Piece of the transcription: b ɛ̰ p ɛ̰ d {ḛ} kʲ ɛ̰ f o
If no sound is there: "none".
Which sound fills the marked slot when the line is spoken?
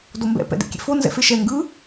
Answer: ḛ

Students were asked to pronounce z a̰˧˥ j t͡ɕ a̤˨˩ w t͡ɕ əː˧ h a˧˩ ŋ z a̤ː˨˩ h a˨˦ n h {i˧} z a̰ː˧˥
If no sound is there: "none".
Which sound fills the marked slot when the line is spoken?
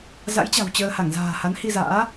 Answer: i˧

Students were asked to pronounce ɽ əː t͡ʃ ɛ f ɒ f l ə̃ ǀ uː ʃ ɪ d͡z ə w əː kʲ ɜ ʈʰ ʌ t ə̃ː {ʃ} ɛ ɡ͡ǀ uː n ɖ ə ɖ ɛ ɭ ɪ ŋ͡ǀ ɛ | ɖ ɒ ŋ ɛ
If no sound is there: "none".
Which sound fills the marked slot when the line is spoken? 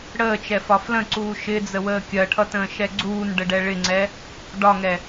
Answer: ʃ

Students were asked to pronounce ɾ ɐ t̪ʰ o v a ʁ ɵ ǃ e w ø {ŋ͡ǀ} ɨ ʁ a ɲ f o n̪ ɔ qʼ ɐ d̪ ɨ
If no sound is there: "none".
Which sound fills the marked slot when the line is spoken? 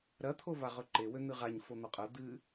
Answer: n̪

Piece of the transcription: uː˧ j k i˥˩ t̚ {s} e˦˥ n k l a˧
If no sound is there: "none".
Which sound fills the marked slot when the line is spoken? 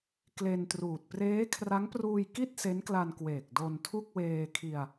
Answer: s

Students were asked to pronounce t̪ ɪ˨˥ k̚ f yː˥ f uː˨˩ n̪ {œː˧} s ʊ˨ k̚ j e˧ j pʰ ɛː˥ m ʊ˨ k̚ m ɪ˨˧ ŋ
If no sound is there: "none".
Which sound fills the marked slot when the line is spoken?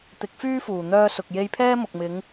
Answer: œː˧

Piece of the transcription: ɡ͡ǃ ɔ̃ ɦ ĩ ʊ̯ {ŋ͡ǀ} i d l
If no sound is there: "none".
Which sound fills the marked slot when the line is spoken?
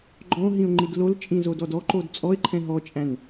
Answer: ŋ͡ǃ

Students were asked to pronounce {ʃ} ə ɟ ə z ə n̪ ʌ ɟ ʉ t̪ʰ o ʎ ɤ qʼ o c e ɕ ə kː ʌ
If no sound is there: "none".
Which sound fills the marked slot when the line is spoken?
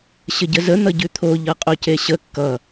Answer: ɕ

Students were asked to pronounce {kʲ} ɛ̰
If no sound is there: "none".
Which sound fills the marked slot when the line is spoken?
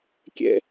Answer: kʲ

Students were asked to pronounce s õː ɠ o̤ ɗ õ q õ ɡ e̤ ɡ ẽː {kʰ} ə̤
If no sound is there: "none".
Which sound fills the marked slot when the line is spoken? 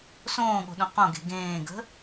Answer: ɡ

